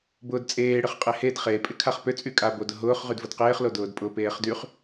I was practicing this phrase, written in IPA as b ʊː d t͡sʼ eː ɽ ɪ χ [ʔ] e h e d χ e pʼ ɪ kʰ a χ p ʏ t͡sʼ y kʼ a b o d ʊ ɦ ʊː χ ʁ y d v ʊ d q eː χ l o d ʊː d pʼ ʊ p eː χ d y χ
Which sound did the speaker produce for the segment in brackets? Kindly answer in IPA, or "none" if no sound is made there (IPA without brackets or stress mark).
qʼ